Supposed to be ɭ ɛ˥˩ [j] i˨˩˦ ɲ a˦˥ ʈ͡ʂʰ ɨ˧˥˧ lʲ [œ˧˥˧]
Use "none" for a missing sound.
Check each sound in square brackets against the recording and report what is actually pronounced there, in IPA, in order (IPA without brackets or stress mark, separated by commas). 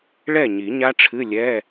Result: ɲ, ɛ˧˥˧